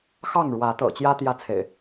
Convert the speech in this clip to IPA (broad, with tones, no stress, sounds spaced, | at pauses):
x ɑ˥˨ ŋ ɻ w ä˨˦ t̪ ɤ̰˨˩ t͡ɕ j ä˦ t̪ j ä˥˨ t͡sʰ ḛ˨˩ ɪ̯